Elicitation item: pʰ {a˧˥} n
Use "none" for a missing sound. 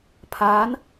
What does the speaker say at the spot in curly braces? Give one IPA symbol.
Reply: aː˧˥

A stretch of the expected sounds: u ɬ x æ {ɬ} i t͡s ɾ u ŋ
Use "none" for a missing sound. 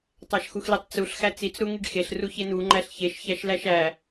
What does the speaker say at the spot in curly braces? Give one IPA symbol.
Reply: t͡s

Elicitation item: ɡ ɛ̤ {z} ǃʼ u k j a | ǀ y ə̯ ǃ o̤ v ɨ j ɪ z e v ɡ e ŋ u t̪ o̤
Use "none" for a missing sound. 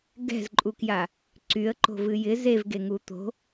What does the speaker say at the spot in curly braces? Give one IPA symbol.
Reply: z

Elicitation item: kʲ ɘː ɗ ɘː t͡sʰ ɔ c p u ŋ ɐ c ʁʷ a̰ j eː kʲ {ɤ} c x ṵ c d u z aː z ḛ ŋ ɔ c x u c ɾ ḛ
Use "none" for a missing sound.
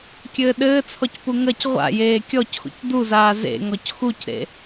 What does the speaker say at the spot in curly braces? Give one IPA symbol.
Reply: ɔ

